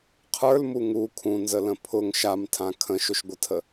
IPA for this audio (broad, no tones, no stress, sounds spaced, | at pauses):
qʰ ə˞ l m u ŋ u kʰ ũ n z ə l ə̃ pʰ ʊ ŋ ʃ a m tʰ ã kʰ ə̃ ʃ ʊ ʃ ɡʷ ə tʰ ə